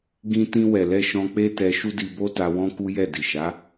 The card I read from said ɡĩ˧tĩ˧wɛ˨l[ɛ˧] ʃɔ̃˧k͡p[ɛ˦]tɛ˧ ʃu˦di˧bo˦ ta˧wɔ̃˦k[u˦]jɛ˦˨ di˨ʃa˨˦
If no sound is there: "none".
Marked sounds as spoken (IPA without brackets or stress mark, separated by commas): ɛ˧, e˦, u˦